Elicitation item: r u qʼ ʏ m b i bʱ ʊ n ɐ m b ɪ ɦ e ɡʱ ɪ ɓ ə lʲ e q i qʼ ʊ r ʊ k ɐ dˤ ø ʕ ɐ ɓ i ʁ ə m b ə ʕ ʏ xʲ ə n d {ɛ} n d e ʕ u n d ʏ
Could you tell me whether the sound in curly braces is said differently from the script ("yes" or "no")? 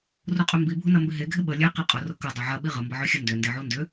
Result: yes